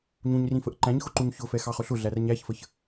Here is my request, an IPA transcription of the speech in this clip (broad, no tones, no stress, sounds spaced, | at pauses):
ɲ ũ ɲ r ĩ f ə ʔ ǃ æ̃ ɲ x ʊ ǃ u ɲ ç ʊ f ɛ x ɑ χ ʊ ɬ ʊ ɮ æ r ɲ æ ç f ə ç